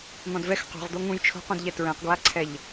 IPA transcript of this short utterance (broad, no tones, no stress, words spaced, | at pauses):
n̪ɔ̃dvɛx qo̤ʁd̪o ŋũj t͡ʃʰo̤qũdʎɛ tɹɛ̃qɡwaǀʰɛʎ